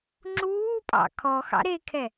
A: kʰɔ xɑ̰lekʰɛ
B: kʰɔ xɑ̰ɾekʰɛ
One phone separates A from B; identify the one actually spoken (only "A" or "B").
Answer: B